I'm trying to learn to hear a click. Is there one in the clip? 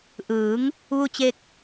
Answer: no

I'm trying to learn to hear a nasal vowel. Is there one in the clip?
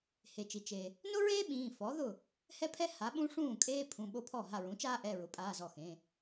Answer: yes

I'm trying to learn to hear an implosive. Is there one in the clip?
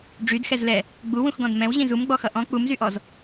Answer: no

